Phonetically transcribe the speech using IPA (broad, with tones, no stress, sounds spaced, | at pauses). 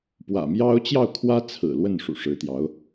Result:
p w ä̰˨˩ m j ɑ˥ ʊ̯ t͡ɕ j ɑ˥˩ ʊ̯ kʰ w ä˥ t͡sʰ ɹ̩˨˩ l w ə˥˩ n ʂ ṵ˨˩ ʂ ɻ̩˧˥ t̪ j ɑ˧˥ ʊ̯